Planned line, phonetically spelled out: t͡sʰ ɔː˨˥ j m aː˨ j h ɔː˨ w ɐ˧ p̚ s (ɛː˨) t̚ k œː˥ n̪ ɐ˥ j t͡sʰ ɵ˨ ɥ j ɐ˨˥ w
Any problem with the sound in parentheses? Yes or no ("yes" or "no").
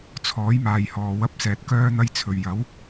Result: no